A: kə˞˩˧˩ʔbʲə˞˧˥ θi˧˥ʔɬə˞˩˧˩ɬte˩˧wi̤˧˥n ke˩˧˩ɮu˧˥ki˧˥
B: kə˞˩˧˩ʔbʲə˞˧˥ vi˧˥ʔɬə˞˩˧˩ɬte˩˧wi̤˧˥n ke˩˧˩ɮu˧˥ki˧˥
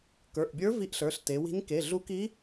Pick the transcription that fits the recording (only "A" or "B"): B